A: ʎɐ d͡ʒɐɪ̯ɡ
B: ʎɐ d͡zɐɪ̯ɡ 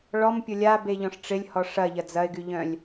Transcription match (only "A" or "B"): B